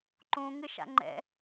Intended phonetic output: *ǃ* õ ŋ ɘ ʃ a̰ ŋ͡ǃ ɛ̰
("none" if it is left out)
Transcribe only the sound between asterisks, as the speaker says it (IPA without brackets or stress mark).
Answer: ǃ